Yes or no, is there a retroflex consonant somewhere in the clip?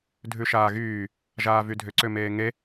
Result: no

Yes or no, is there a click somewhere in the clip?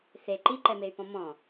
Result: yes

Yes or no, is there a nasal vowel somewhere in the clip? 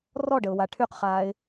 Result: no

